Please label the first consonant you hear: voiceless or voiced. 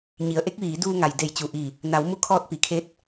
voiced